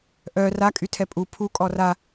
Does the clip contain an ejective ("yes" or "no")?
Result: yes